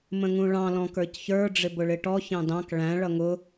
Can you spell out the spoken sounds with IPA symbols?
m ə̃ ŋ ũ ɭ ɑ̃ l ɔ̃ k ə˞ c ç ə˞ ɖ͡ʐ ɪ b ʊ ɭ ɪ ʈ ɔ ç ɑ̃ d ɑ̃ k ɭ æ̃ ɭ ʌ ŋ ʊ

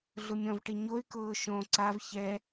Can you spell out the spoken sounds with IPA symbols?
ɮ ʊ mʲ ɔ̃ v ʈ i ɲ o y̯ k ʊː ʃ õ ǀ a v ç ɛ

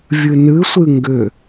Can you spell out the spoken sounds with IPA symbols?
vʲ ɨ n ɨ sʷ ɨ ŋ ɡ ʏ

